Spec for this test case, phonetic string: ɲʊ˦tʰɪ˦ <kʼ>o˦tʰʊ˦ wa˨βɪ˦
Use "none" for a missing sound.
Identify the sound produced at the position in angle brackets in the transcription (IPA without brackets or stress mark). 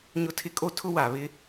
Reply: kʼ